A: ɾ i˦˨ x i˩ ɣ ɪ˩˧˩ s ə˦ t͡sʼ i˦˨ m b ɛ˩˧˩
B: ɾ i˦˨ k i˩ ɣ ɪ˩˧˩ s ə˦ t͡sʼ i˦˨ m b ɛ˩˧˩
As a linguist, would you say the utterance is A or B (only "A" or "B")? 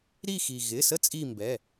A